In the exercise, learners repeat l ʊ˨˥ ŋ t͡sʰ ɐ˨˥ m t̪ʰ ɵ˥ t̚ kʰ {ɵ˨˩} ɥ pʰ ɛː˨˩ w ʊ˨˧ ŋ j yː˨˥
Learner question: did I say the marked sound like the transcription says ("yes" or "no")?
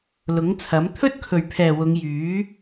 yes